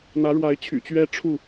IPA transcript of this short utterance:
n̪ ä˨˦ ɻ w a˨˦ ɪ̯ t͡ɕʰ y̰˨˩ t͡ɕ ɥ ɛ˦ ʈ͡ʂʰ u˥˨

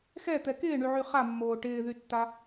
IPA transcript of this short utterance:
x ɛ t̪ ɛ k ɪː ɳ y ʕ y χ a mː oː ʈ ɪː ð y tː a

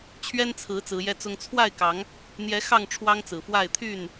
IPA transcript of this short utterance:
t͡ɕʰ ɥ ɛ˦ n t͡sʰ ɹ̩˨˦ t͡s ɹ̩˨˦ j ɛ˦ t͡s ʊ˦ ŋ t͡sʰ w a˥˨ ɪ̯ k ɑ˨˦ ŋ | n̪ j ɛ˨˦ x ɑ˥˨ ŋ ʈ͡ʂʰ w ɑ˦ ŋ t͡s ɹ̩˨˩ f w a˥˨ ɪ̯ t̪ʰ y˥˨ n

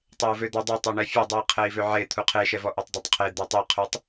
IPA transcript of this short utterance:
tˤ e u̯ v ø d̪ ɔ dˤ e tˤ ø ɳ ɛ fʲ ɔ dˤ u i̯ qʰ ɛ i̯ v ø ʕ e t̪ʰ u qʰ e ʃ ɛ v ɔ ʔ ɛ tˤ dˤ ɛ tˤ qʰ e d̪ ɛ tˤ i qʰ u tˤ

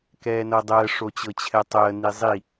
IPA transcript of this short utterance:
k ɛː n ɤ dˤ əː ʂ o t͡ɕ ɤ t͡ɕʰ ɛ tˤ əː n i zˤ i

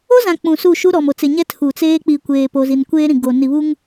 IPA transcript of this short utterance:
o˦ z ã˨ k͡p ũ˨ s u˦˨ ʃ u˦ ɾ ɔ˨ m o˨ t͡s ɪ˨ ɲ ɛ˦ tʰ u˨ t͡s eː˦ k͡p i˨ kʷ eː˨ p o˨ z i˨ n kʷ eː˦ ɾ ĩ˨ ɡ o˨ n i˨ β u˦ ŋ

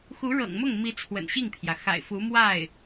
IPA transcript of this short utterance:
x u˧˥ ɻ ɤ̰˨˩ ŋ m ʊ˥˩ ŋ m i˧˥ t͡sʰ w ə̰˨˩ n ɕ i˥˩ ŋ pʰ j ä˩ x a̰˨˩ ɪ̯ f u˧˥ m w a˥˩ ɪ̯

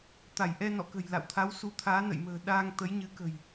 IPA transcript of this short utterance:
t̪ a˧˩ j ʔ ɛ˧ n ɔ̰˧˨ k ə̤˨˩ j l a̰˧˨ w t̪ʰ a˨˦ w s u˨˦ t̪ʰ aː˨˦ n ə̰˧˨ j m ə̤ː˨˩ ɗ aː˧ ŋ t̪ ə˨˦ j ɲ ɨ˨˦ k ə̤˨˩ j

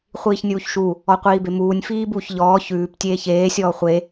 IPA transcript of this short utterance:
χʷ iː ç nʲ uː ç ʃ u | ɔ qʷ iː b e m uː nʲ f iː b uː ç ʎ ɔː ç ʉː p tʲ eː ç eː sʲ ɔː χʷ e

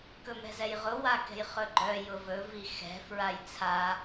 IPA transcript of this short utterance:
k ɵ m ɛ̤ z ɛ j ʁ ʊ w a k ɛ̤ j χ ɵ ɡ͡ǃ œ j ʊ v ɵ v i x ɛ̤ f ɹ a j t͡sʰ a

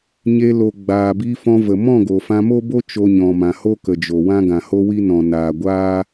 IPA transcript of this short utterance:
ɲ e˧ l o˨ ɡ͡b aː˨ b i˧ f ɔ̃˧ v ə˨ m ɔ̃˦˨ ɡ o˨ f ã˧ m o˦ b o˦ t͡ʃ o˧ ɲ ɔ̃˨ m ã˨ h o˦ k ə˨ d͡ʒ o˨ w ã˦ ɡ ã˨ h o˦ w i˦ n ɔ̃˨ n aː˨ ɡʷ aː˦

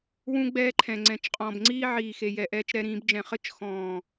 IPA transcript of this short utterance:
w ũ˦ ɡ͡b ɛː˦ ǃʰ ɛ̃˨ ŋ͡ǀ ɛ̃˨ t͡ʃ qʼ ɔ̃ː˨ b ŋ͡ǀ iː˦ ʕ iː˨ x e˨ j ɛ˨ ʔ ɛː˦ t͡ʃ ɾ ɛ˦ ɾ ĩː˨˦ b d͡ʒ ɛ̃˨ χ ɘ˦˨ t͡ʃ x ɔ̃ː˨

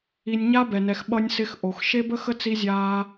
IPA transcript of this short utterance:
i˧ nʲ ɲ a˦ b ɛ˨ n ɛ˨ x ɓ ʌ˧ nʲ s ɪ˧ x ʔ o˨ x ʃ e˦ b ə˦ x ə˦ t͡s i˧ zʲ aː˧

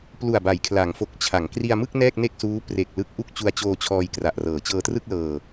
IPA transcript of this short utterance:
p l u˨˩ a̯ b a˩˦ j kʰ l a˩˦ ŋ f o˨˩ k̚ t͡ɕʰ a˩˦ ŋ k r i˧ a̯ m ɯ˥˩ k̚ n ɛː˥˩ k̚ n e˥˩ k̚ s uː˦˥ p r e˨˩ k̚ l ɯ˥˩ k̚ ʔ u˥˩ k̚ t͡ɕ u˧ a̯ t͡ɕ oː˧ t͡ɕʰ ɔː˧ j k r a˨˩ ʔ r ɤː˩˦ t͡ɕ ɤː˧ t r ɯ˥˩ k̚ l ɤː˧

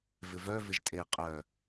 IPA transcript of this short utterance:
v ɪ v œ v ɪ ʒ tʼ e qʼ œ

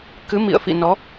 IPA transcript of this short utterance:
k ɨ˨˦ m ḭ˧˨ ə̯ f ḭ˧˨ n ɔ˨˦

